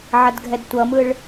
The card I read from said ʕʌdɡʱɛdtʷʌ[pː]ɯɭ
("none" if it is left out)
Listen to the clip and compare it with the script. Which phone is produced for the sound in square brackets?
m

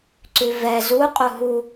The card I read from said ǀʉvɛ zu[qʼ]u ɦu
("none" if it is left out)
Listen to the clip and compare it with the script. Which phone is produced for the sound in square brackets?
qʼ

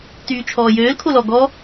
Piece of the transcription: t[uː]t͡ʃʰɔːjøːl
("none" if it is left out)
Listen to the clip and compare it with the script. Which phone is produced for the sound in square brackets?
yː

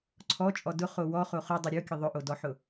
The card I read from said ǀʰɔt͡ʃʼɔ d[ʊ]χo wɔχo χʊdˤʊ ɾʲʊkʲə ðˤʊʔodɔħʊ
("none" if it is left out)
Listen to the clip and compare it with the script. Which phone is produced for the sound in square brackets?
ʊ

